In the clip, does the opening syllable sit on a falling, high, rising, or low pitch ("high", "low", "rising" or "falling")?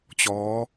rising